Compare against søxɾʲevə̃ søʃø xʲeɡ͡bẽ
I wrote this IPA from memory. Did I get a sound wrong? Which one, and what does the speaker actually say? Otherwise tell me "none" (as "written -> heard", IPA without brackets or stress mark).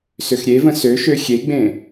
none